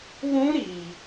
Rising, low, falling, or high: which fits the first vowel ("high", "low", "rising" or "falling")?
high